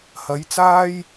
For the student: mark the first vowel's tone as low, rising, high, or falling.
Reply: rising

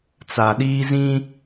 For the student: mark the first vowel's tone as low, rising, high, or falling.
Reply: low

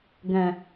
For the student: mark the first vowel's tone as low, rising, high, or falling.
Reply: low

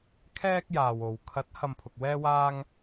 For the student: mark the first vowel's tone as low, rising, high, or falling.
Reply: high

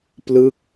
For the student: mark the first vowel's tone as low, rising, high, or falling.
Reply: falling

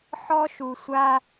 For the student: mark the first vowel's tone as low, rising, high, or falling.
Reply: high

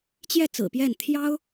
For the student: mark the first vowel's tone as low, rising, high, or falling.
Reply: falling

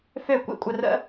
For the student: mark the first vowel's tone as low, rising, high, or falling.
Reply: falling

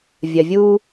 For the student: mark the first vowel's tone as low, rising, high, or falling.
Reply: low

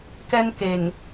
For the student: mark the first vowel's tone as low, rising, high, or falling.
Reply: high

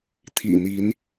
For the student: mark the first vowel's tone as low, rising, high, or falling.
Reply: low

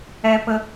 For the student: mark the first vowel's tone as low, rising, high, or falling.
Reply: high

